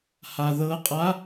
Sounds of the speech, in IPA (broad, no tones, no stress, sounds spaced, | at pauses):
h a ð ɤ qʼ a